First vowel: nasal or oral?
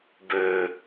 oral